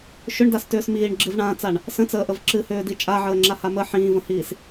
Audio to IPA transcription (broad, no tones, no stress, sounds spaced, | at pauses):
ʃ ʏ ɳ d a s t ʏː s m iː ɳ ɡ͡ǁ ɨ v ɳ ãː t͡s a ɳ | s ə̃ t͡s əː ʔ ə v ǁ ɨ h ʏː d i t͡ʃʼ a ʕ əː ŋ͡ǁ a h a m ə ħ ĩː v ə̃ h iː s